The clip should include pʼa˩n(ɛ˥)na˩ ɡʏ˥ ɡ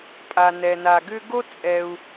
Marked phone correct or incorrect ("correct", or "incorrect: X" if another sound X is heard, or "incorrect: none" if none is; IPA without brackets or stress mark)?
incorrect: ɛ˩